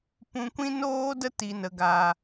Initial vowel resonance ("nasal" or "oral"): nasal